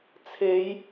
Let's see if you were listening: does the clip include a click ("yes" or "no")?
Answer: no